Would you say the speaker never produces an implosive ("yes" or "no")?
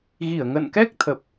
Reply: yes